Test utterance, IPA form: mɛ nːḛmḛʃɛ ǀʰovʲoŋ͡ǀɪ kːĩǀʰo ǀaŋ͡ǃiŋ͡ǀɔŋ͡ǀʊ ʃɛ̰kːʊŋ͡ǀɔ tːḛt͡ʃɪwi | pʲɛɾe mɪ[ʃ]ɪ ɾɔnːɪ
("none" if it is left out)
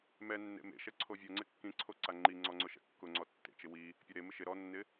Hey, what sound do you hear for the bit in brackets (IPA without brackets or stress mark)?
ʃ